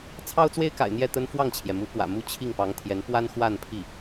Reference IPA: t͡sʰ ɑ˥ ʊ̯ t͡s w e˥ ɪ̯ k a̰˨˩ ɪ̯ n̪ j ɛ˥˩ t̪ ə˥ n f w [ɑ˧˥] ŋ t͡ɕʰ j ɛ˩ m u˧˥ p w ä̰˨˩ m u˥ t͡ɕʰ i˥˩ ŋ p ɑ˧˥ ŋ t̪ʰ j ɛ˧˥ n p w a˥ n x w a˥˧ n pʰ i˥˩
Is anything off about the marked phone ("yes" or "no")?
yes